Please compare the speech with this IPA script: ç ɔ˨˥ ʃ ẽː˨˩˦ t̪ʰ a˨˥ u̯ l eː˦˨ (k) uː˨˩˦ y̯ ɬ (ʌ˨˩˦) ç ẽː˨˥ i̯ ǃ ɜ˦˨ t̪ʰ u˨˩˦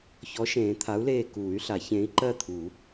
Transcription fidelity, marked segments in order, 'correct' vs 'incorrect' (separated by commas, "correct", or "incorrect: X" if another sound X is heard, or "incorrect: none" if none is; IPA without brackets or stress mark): correct, incorrect: a˨˩˦